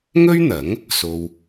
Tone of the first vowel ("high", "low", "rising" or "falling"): high